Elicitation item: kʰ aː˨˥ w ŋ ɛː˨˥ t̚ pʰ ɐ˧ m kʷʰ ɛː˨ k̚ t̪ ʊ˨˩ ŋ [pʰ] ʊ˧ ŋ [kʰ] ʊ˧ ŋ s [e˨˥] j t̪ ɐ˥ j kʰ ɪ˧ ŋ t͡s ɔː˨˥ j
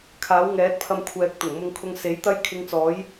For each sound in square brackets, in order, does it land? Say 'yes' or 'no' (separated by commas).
no, yes, yes